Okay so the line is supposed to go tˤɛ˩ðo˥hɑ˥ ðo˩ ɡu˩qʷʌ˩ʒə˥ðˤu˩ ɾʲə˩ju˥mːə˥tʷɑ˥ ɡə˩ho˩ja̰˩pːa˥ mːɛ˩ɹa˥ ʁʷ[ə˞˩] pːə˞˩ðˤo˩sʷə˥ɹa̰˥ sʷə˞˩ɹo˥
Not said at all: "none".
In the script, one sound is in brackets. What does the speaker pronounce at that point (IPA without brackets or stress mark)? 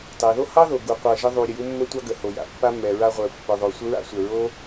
ə˞˩